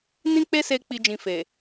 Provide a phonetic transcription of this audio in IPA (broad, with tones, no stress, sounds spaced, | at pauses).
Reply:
n ĩ˦ k͡p e˦ s e˧ k͡p i˦ d͡ʒ ĩ˧ f e˨